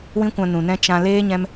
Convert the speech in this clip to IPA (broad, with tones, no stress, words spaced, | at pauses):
wĩ˦kʷã˧ nũ˨ nɛ̃˦ t͡ʃã˧ leː˦ ɲɛ̃˦m